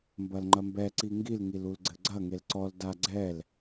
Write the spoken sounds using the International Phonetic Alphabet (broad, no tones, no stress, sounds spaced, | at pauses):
m b ɐ l ŋ͡ǃ ɐ m b ɛ ǀ i ŋ ɡ i l ŋ i l u l ɡ͡ǀ ɘ ɡ͡ǀ ɐ ŋ e l ǀ ɔ l d a ɡ͡ǀ ɛ l